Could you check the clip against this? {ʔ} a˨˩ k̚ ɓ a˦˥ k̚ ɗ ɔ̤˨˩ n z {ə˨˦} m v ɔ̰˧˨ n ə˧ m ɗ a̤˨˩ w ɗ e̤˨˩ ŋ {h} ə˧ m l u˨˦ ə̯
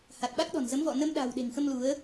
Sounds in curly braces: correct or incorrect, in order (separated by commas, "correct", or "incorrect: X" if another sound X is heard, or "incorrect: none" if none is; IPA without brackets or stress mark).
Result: incorrect: h, correct, incorrect: x